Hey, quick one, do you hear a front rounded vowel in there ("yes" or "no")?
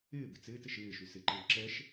yes